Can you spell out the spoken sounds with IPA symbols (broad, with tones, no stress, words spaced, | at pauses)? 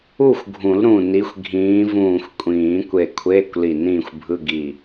u˥˨xʷɡʱũ˨˩˦l ɾũ˧˩ni˨˦xʷ ɡʱĩː˨˦vũː˧˩xʷkʷʼĩː˨˩˦ kʷe˧˩kʷʰeː˧˥˧kʷli˧˩ nĩː˥˨xʷbʱɯ˧˥˧ɡi˧˩